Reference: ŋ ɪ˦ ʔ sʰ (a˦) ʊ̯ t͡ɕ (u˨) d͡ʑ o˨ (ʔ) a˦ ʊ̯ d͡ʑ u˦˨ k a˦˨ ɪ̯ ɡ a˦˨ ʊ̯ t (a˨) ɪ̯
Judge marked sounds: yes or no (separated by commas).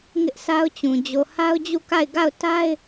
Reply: yes, no, no, no